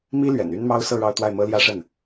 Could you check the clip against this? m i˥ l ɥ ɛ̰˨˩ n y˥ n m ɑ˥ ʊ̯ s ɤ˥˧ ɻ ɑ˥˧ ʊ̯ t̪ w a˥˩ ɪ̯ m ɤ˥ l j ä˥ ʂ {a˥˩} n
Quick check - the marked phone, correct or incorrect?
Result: incorrect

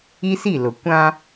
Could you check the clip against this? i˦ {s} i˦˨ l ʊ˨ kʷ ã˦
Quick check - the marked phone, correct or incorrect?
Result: correct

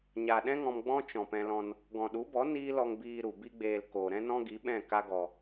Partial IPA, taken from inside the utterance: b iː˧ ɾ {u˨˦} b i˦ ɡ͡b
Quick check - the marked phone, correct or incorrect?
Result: incorrect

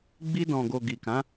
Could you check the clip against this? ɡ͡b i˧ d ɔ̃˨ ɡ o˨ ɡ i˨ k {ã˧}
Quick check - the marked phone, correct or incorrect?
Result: incorrect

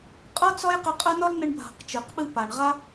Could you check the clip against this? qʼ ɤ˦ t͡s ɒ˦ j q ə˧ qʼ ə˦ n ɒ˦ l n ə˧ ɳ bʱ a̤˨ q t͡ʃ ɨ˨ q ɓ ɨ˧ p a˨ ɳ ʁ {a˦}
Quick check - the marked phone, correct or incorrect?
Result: correct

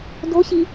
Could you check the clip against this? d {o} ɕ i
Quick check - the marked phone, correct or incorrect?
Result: correct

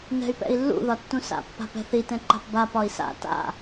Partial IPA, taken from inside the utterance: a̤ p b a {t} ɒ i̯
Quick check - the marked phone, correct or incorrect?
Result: incorrect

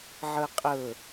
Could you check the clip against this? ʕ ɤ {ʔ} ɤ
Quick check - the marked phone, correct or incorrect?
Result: incorrect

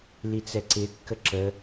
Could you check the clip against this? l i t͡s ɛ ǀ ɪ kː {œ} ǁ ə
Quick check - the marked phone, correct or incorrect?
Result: incorrect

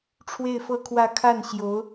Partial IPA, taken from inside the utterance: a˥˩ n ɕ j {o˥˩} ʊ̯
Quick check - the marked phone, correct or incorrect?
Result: incorrect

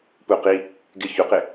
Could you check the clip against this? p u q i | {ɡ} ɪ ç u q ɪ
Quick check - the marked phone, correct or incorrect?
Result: correct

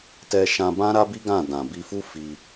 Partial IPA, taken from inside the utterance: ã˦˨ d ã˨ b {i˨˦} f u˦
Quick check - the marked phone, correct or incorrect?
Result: incorrect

